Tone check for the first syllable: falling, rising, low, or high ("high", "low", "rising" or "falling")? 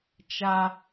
high